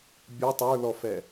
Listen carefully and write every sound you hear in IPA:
bʲə tˤə˞lɔfɛ

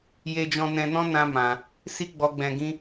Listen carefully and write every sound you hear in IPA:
je˧d͡ʒɔ̃˧nɛ̃˧nɔ̃˦ nã˦mã˧ | si˦ɡ͡bɔ˧ɡ͡bɛ̃˧ɡĩ˦

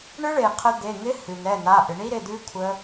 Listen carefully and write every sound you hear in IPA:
ɳɨ˦˥ɭe˩qʰə˨˦ d̪e˩˧˩ŋɪ˦˥hʉ˩n̪ɛ˩˧˩ n̪a˩˧˩ʔɪ˩ ɳi˦˥ɾɪ˩˧˩d̪ʉ˦˥ kʷʰə˦˥

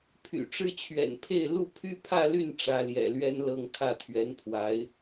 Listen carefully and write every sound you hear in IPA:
pʰy̰˨˩ʈ͡ʂɻ̩˥t͡ɕʰɥɛ̰˨˩npʰe˥˧ɪ̯ lu˥˩pʰy˥pʰä˥˧ly˥˩n ʈ͡ʂä˧˥ljɛ̰˨˩lɥɛ˥nlɤ˥˧ŋ kʰä˥˩t̪ʰɥɛ˧˥npʰwa˧˥ɪ̯

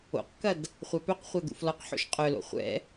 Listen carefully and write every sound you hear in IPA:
o̰qkɐd | χʷapœqχʷa d̪ṵflɔqħo̰ʃ qʼœlo̰ χʷɛ̰

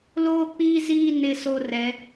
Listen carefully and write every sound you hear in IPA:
loː˦˨k͡piː˦ziː˦˨ nɪ˦˨so˦˨rɛ˨˦

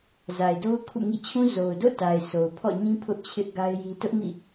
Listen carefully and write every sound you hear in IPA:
za˨ɪ̯do˦ʊ̯ kʰṵ˦˨ŋḭ˦˨t͡ɕʰũ˦ zo˨ʊ̯do̰˦˨ta˨ɪ̯ sʰo˨ʊ̯pʰɔ̰˦˨ɲĩ˦ pʰʊ˦ʔt͡ɕʰɪ˦ʔ ɡa˦ɪ̯ji˦ tʊ˦ʔmḭ˦˨

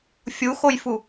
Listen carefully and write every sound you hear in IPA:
fʲuxojfu

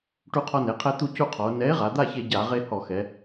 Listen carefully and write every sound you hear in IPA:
ʈu˧qʰɔ˧ne˩˧qʰɛ˧ t̪u˥˨cu˥˨qʰɔ˩˧o̯ nɛ˨˥e̯ ʁa˩˧d̪a˥˨çe˧ ɟa˧˩˧ ʁe˧ hɔ˧˩˧xɛ˩˧

